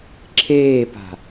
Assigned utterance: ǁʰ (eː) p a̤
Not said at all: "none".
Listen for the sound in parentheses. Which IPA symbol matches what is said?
eː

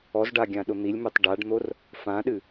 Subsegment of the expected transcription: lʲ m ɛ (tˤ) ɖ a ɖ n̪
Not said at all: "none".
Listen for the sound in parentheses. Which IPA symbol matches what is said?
tˤ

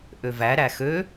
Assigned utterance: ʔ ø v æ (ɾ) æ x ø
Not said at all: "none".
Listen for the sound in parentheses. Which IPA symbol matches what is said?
ɾ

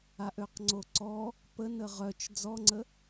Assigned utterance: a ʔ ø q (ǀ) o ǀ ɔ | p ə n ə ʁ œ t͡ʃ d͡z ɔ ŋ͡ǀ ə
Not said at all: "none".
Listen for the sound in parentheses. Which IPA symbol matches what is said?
ŋ͡ǀ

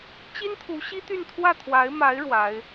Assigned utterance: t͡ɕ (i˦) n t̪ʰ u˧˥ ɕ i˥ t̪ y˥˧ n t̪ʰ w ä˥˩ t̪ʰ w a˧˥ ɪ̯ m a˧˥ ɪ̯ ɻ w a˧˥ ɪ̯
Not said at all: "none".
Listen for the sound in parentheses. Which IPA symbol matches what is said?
i˥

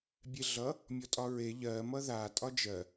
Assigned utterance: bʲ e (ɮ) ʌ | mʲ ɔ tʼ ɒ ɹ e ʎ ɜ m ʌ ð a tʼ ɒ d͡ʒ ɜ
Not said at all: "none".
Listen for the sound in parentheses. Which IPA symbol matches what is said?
ɮ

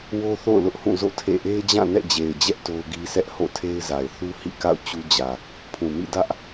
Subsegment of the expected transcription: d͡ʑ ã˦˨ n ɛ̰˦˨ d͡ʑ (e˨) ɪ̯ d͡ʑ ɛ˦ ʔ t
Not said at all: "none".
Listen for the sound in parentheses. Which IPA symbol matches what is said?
e˨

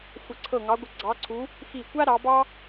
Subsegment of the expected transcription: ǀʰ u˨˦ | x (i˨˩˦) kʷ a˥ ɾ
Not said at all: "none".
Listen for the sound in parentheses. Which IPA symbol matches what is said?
i˧˩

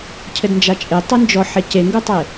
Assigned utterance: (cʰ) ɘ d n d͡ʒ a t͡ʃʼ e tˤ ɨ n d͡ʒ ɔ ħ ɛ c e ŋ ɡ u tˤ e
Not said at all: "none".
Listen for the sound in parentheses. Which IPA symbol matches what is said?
cʰ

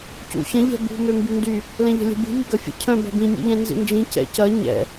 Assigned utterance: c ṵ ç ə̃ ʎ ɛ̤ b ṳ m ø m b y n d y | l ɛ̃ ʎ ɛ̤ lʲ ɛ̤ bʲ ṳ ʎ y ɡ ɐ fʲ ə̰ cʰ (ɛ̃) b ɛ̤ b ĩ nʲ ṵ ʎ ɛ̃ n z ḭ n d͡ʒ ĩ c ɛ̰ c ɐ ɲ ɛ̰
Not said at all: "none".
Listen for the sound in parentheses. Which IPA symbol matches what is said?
œ̃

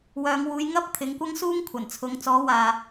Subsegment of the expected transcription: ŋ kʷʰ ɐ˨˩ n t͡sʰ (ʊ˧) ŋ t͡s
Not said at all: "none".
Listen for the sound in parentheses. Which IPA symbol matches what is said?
ʊ˨˧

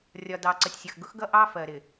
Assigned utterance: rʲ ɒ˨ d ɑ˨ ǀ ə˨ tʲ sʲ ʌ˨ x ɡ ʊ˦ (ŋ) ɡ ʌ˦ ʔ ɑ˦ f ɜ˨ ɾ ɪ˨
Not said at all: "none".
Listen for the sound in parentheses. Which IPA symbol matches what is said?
x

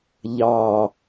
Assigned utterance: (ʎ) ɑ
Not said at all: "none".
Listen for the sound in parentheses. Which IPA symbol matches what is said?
ʎ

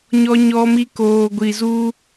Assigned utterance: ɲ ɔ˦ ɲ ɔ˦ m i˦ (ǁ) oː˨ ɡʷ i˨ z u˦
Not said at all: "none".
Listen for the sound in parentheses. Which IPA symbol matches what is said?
k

